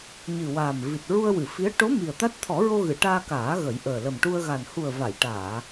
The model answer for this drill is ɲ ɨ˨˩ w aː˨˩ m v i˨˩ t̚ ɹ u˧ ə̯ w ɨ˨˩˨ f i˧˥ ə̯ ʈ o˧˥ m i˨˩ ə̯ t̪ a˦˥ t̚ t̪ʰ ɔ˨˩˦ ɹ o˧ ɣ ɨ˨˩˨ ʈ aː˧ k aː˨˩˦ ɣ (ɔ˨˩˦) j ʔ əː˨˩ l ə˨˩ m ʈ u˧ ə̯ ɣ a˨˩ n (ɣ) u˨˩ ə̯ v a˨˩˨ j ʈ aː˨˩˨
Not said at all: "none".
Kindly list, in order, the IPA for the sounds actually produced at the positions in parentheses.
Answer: ə˨˩˦, h

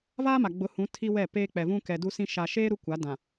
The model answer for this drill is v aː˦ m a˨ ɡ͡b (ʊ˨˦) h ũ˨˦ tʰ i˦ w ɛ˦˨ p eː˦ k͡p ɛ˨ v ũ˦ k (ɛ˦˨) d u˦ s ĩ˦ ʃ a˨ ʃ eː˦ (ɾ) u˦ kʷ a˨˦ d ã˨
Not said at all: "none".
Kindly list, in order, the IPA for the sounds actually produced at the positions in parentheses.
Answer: ʊ˨˦, ɛ˨, ɾ

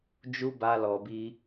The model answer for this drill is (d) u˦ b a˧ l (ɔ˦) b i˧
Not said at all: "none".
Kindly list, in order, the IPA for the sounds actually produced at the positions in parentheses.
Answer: d͡ʒ, ɔ˨

